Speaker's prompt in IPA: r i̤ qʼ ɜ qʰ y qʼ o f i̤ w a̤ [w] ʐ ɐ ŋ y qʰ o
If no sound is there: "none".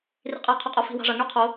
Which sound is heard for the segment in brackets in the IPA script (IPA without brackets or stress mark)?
none